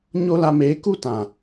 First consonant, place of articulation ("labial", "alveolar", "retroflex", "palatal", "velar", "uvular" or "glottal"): palatal